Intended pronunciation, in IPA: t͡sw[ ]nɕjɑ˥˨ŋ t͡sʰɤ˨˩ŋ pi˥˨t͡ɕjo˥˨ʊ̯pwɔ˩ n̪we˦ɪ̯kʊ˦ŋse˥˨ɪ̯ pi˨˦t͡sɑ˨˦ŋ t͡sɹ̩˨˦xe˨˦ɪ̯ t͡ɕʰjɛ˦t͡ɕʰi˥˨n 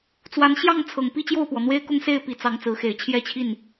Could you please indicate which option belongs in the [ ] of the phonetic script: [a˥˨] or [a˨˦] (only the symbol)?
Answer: a˨˦